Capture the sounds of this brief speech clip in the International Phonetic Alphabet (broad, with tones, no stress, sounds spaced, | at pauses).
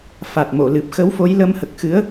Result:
f a˨˩ t̚ m o˨˩˨ l ɨ˨˩ p̚ x ə˧˥ w f o˧˥ j l ə˧˥ m h ə˨˩ k̚ x ɨ˧˥ ə̯